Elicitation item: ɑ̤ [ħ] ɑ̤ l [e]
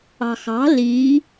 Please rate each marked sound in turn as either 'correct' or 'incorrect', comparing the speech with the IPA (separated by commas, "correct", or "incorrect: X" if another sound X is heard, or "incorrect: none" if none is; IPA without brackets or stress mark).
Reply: incorrect: x, incorrect: i